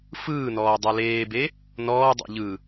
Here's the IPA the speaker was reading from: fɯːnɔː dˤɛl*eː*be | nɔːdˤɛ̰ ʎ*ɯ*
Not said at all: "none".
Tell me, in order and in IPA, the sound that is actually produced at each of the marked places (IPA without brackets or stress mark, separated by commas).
eː, ɯ